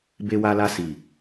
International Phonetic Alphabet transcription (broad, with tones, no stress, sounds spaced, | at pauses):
b e˧ w a˧ l a˧ s i˨